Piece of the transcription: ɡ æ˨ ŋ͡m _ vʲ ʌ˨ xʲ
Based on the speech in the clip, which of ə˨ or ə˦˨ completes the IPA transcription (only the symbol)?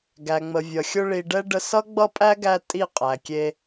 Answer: ə˨